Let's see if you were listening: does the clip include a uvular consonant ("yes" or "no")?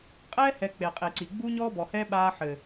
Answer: yes